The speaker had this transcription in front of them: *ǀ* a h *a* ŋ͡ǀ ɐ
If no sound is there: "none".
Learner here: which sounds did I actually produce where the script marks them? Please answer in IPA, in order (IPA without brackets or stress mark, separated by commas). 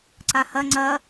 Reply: ǀ, ɐ